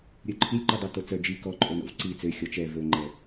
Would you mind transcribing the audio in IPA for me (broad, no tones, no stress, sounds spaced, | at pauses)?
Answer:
ɾʲ ɵ ǃʰ i lʲ ǃ u dˤ e t o t͡s œ d͡ʒ i k ɔ ǃʼ o n o̰ v ǀ i t͡s ø xʲ ɔ t͡ʃ ɛ v ɵ ŋ͡ǃ ɛ